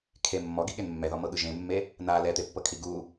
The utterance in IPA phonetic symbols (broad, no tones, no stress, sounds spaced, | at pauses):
kʰ e mː ɔ ɡ i ɠ e n mː ɛ ð ɔ m ɤ ɠ ɯ ʒ ẽ mː e | n a l ɛ t̪ e pː ɤ kʰ i ɡ u